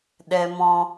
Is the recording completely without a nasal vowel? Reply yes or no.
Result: no